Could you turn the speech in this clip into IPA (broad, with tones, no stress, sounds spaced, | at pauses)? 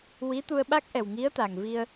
w i˧˥ t̪ u˧ ə̯ ɓ a˦˥ k̚ ʔ ɛ˨˩ w ŋ i˧˥ ə̯ t̪ a˨˩ ŋ v i˧ ə̯